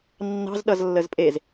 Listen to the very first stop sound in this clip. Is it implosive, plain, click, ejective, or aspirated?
implosive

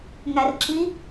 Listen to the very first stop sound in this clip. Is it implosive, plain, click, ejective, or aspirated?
click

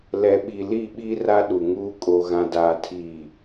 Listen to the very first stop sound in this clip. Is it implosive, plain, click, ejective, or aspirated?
implosive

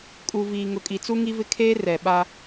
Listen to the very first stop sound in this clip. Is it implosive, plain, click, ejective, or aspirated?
ejective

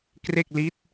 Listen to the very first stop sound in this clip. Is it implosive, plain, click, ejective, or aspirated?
plain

